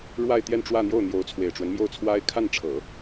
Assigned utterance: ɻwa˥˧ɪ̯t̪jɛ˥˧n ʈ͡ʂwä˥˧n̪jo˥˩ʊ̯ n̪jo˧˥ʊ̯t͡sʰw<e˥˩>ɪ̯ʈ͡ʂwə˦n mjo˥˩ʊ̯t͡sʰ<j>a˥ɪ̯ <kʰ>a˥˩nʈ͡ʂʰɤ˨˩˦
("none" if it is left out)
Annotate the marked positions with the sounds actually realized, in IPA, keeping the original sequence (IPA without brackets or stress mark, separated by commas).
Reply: e˨˩, w, kʰ